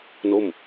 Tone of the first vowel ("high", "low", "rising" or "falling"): falling